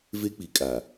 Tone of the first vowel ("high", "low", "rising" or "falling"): high